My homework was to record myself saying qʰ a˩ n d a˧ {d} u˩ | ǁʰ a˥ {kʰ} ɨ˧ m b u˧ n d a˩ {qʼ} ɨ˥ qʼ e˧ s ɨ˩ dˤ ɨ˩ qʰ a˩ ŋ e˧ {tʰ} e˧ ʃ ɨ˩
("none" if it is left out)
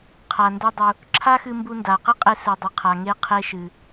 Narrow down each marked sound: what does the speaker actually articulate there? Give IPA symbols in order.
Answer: dˤ, x, q, qʰ

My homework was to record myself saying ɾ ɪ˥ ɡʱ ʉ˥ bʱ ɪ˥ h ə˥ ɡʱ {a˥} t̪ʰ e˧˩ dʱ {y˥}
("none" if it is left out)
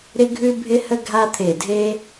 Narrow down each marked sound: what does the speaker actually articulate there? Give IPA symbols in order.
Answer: a˥, e˥

